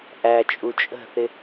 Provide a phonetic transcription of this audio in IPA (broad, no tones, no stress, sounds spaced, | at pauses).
ʔ æ t͡ʃʼ u t͡ʃʼ ə̤ θ ɪ